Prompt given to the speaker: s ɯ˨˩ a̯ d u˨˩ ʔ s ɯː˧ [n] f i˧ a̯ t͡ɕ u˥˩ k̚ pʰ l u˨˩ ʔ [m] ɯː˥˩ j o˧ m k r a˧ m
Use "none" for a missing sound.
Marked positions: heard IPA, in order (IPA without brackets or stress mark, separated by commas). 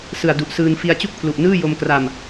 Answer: n, n